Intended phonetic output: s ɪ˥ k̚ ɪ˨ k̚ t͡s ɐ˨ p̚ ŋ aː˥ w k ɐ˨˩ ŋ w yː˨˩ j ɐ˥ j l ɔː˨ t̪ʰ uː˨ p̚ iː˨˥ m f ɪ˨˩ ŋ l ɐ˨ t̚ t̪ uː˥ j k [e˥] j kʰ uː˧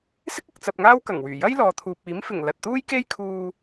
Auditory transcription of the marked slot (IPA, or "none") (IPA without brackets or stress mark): e˥